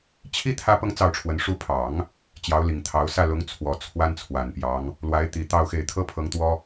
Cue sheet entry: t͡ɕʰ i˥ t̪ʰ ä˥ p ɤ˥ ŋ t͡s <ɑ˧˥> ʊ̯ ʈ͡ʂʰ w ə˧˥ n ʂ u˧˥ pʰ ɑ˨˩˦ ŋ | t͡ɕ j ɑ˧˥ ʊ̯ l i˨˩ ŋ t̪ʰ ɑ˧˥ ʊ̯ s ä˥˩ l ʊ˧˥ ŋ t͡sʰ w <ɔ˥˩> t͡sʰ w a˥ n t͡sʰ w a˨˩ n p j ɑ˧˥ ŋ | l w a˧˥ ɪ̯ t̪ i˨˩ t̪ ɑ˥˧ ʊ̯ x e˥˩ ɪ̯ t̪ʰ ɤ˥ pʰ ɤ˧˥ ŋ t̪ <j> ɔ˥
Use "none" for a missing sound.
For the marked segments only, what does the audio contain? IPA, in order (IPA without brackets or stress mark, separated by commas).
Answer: ɑ˥˩, ɔ˨˩, w